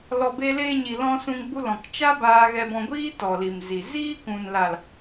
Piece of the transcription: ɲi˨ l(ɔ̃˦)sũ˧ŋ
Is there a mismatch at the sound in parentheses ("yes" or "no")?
yes